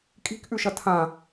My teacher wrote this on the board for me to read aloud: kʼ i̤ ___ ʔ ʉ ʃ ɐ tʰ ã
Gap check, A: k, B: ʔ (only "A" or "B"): A